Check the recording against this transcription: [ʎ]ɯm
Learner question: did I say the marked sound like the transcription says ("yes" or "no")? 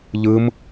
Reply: yes